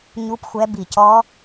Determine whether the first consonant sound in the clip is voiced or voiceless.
voiced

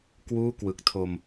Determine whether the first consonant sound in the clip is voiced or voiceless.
voiceless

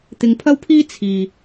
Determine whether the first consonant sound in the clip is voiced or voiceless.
voiceless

